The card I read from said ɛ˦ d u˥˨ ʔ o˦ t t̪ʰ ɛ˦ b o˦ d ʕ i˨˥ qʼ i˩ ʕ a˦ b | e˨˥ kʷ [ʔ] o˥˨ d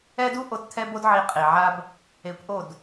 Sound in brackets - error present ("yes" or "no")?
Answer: no